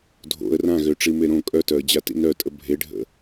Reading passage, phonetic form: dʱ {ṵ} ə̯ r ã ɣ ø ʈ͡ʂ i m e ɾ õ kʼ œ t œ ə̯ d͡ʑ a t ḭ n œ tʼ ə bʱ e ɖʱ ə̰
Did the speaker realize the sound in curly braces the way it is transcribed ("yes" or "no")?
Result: no